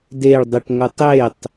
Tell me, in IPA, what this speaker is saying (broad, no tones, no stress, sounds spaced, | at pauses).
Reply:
d e ɭ dˤ ɯ ʈ ŋʷ ɯ tˤ e tˤ